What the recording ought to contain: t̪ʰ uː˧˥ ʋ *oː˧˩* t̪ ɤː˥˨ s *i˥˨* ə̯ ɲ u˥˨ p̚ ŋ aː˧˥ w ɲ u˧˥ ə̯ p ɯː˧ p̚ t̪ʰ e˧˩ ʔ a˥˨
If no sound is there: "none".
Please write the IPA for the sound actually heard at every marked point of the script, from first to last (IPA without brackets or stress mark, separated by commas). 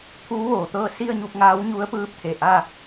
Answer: oː˧˩, i˥˨